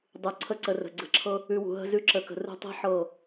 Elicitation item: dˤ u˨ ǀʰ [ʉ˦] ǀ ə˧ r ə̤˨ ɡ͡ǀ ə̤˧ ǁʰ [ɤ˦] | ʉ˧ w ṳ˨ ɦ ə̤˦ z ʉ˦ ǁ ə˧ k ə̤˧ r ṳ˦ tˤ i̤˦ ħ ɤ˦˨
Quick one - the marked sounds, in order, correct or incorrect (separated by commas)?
incorrect, correct